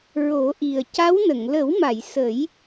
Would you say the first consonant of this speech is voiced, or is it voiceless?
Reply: voiced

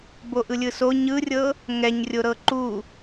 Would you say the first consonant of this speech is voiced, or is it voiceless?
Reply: voiced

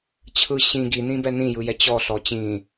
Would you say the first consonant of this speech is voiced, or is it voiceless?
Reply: voiceless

